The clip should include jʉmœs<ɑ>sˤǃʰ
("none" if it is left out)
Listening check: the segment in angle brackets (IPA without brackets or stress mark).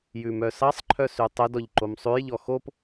ɑ